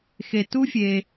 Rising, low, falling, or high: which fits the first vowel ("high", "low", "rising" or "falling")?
low